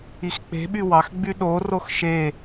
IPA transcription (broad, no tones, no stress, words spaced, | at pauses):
ixk͡pe̤ɓy wɑxɡ͡by ɗorox ʃe